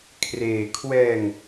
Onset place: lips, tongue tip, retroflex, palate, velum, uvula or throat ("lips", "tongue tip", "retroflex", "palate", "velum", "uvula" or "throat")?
velum